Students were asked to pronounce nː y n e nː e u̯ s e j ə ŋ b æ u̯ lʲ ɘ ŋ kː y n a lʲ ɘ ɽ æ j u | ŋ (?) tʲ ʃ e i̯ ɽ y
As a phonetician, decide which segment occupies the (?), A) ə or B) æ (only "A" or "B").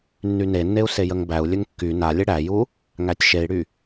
B